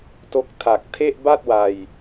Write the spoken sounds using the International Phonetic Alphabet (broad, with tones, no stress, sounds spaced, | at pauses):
t o˦˥ k̚ tʰ a˨˩ k̚ tʰ e˥˩ ʔ b a˥˩ t̚ w a˨˩ j